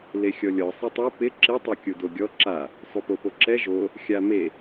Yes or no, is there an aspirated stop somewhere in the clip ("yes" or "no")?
no